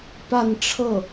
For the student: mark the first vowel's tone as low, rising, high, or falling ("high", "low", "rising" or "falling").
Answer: falling